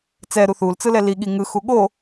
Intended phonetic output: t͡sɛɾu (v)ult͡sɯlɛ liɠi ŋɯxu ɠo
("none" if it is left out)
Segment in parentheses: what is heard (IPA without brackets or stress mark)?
θ